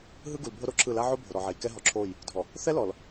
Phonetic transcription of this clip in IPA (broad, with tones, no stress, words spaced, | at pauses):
ɦɯ˦ɡu˨l bʱo˦ɾo˨ǁʰɯ˦˨ la˦ʕo˦ bʱo˨ɾɔ˨ʕe˨j kɛ˦ɦɔ˨ǁʰo˦˨j | dʱɔ˨ | θɛ˦lɔ˨l